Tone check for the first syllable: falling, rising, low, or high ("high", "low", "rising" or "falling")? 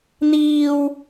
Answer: low